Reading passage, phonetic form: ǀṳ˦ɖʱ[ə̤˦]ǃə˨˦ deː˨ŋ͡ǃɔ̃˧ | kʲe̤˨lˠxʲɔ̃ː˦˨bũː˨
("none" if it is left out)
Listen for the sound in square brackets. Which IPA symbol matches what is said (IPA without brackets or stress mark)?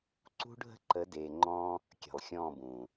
ə̤˦